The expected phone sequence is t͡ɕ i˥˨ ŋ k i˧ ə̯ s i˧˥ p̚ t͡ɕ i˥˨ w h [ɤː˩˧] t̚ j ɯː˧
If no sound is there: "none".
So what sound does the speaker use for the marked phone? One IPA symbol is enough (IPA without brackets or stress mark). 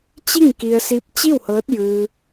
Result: ɤː˧˥